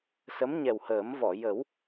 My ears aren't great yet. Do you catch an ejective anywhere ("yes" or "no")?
no